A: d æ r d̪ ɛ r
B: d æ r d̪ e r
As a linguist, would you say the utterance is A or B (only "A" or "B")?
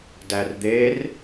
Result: B